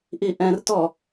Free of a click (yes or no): yes